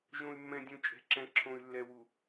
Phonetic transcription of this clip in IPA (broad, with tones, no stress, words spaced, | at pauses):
ʒõ˨y̯mːɛ̃˨dʲũ˨ t͡ʃʼɛ̤˨ǁɛ̃˨ ǁʰõ˨y̯lːɛ˨ wu˨